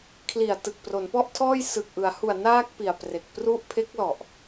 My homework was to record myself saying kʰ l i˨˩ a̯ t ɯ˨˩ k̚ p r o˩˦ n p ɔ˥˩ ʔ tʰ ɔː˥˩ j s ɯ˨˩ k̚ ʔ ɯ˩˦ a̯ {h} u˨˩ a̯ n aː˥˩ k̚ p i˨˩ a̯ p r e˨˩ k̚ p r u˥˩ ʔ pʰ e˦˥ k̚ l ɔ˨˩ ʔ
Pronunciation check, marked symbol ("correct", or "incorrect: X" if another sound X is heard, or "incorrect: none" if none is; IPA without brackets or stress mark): correct